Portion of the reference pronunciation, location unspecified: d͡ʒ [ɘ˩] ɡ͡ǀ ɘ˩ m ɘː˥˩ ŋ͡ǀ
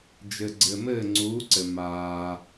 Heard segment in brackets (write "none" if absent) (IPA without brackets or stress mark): ɘ˩